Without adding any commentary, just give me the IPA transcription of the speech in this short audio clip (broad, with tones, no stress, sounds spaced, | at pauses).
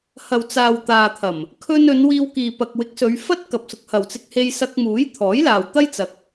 h ɐ˨ w t͡s aː˨ w t̪ aː˨ t̪ʰ ɐ˨˩ m | kʰ ɵ˧ n ɵ˨˧ n w iː˧ w k iː˨ p ɐ˨ k̚ w ɪ˨˥ k̚ s ɵ˨˧ ɥ f ɐ˥ t̚ k ɐ˨ p̚ s ʊ˨˥ k̚ h ɐ˨ w t͡s ɪ˧ k̚ h e˧ j s ɐ˧ k̚ m uː˨˥ j t̪ʰ ɔː˨˥ j l aː˨ w t̪ ɐ˥ j t͡s ɐ˧ k̚